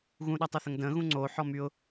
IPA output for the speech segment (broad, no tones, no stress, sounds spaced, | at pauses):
ɣ ũ ɗ a tˤ o θ ə ŋ d ə̃ ɣ ũ ŋ͡ǀ o ħ ɔ m y ʊ̯